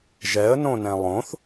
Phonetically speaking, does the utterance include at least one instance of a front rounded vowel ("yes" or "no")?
no